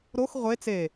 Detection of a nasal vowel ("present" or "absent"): absent